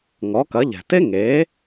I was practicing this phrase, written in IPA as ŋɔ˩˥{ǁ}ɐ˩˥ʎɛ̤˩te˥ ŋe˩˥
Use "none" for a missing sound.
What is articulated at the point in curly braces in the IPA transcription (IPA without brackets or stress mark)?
k